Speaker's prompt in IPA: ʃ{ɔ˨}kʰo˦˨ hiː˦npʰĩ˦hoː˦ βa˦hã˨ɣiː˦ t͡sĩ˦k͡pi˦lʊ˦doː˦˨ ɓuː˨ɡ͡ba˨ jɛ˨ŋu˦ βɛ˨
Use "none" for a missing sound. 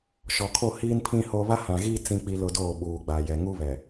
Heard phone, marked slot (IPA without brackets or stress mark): ɔ˨